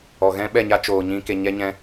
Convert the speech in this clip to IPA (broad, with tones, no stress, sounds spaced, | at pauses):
ɔ˨ ɣ ɛ̃˦ ɓ ɛ˦˨ ɲ a˦ t͡ʃ oː˨ ɲ ĩ˧ k e˨ ɲ ɛ˧ ɲ ɛ̃˧